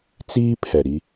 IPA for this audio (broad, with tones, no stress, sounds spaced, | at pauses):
t͡s iː˦ pʰ ɛ˨ ɾ i˦